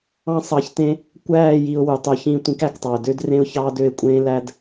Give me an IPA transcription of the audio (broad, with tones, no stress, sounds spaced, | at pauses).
ɑ̃˦ sˤ ɑ˧ ç t ẽ˦ | kʷ æː˦˨ j i˨ ʊ̯ w u˨ tˤ o˧ ç ĩ˦˨ tʷ ĩ˦ k æ˧ k tˤ ɑ˨ ʊ̯ d ø˦ d r ẽ˦ ʊ̯ ç ɑː˦ d ø˧ ɪ̯ kʷʼ ẽː˦ l æ˦ d